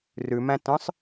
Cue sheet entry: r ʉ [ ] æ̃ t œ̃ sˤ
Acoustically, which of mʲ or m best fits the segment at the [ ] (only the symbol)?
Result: m